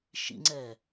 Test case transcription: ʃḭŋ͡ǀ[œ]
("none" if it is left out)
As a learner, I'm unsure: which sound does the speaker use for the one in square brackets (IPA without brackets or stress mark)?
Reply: ɛ